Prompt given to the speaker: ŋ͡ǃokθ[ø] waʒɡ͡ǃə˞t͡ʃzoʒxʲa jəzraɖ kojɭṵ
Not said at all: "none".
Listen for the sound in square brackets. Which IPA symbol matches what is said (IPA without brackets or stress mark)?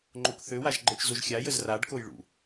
ø